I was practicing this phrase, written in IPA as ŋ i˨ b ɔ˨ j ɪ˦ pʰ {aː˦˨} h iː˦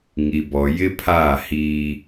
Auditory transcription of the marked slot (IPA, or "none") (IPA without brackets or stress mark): aː˦˨